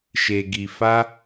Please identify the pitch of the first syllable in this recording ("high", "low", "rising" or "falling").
low